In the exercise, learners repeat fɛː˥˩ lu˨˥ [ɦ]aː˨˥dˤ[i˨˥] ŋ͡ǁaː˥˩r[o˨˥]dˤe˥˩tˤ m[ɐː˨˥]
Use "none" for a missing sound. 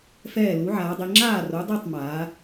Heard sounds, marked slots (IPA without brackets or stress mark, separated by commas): ʕ, i˨˥, o˨˥, aː˨˥